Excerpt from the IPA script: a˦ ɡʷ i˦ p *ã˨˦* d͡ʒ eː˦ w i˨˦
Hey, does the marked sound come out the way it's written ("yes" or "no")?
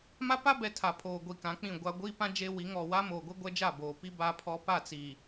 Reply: no